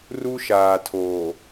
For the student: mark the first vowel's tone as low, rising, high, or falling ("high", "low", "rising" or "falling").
high